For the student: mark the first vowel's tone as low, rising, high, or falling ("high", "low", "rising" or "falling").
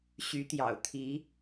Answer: rising